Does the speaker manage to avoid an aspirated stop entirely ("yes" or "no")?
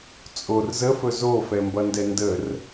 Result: yes